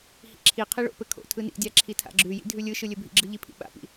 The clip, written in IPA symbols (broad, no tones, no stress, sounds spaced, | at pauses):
h ḭ ǁʰ i qʰ i ɭ o̰ p ɘ kʰ o̰ tʰ ɯ n ḭ dʲ a ǁʰ i tʰ a̰ ɡ͡ǁ ʉ j ḭ dʱ ʉ lʲ ɯ ʃ ɯ lʲ ɘ bʱ ḭ ɡ͡ǁ ɯ ʎ i pʰ ḭ ɓ a̰ p ḭ